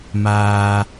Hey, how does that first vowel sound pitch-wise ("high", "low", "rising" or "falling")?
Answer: low